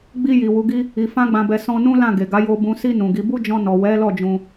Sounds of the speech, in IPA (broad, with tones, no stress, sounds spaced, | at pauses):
ɡ͡b i˧ j i˨ w u˨˦ ɡ i˦ | i˨ f ã˧ ɡ͡b ã˨ b ɛ˨ s ɔ̃˧ n ũ˦ l ã˦˨ ɡ e˨ ɡ a˨˦ j o˧ b ũ˨ s i˧ n ũ˨ ɡ i˨˦ b u˦ d͡ʒ ɔ̃˧ n ɔ˨ w ɛ˨˦ l ɔ˦˨ d͡ʒ ũ˧